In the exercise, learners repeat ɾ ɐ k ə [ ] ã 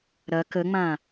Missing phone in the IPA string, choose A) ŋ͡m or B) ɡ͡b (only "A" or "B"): A